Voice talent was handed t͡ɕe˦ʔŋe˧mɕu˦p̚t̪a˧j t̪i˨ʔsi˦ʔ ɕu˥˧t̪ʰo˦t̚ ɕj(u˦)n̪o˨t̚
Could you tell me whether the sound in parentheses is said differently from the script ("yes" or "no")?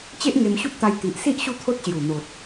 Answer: yes